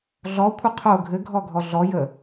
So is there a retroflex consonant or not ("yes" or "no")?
no